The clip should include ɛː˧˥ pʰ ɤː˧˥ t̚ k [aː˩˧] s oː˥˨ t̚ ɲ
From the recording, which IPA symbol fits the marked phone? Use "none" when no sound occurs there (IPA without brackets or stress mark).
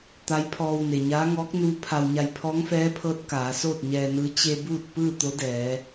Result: aː˩˧